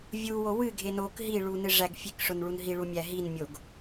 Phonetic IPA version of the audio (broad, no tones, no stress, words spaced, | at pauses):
vʲuwo wɨɡʱe nok ɦiɭu nɨʐæɡfʲek ʂʊnɭunɦiɭu mʲæɦinmʲoɡ